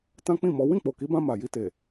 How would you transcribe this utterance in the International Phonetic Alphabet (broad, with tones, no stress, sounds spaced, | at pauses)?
t ã˦ k͡p ĩ˦˨ m ɔ˨˦ w ĩ˦˨ k͡p o˨ k i˨˦ b ã˧ m a˨ j i˧ t e˨